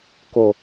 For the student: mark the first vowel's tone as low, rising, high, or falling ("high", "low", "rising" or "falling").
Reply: low